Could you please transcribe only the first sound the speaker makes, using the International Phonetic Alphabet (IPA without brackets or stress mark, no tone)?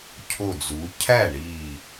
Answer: cʰ